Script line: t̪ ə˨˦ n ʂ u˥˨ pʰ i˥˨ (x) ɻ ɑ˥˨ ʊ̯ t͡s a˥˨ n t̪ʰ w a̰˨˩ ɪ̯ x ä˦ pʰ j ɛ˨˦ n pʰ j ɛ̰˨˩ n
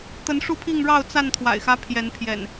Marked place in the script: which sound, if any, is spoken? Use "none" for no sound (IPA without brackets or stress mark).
ŋ